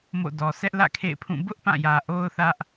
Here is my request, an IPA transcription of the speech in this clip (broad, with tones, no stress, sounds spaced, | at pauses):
m o̰˦˨ d ɔ˨ sʰ ɛ˦ ʔ l ä̰˦˨ kʰ ḛ˦˨ ɪ̯ pʰ ũ˦˨ b ʊ˦ ʔ p ã˦˨ j ä˨ ʔ o˦ ʊ̯ θ ä˦ ʔ